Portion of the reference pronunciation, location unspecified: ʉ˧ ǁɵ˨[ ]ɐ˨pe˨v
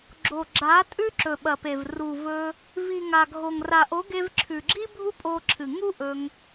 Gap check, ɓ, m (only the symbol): ɓ